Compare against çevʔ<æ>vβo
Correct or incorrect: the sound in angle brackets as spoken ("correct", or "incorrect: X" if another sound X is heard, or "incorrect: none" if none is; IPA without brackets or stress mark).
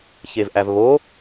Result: correct